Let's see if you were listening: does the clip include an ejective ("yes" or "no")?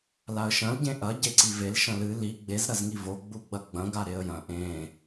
no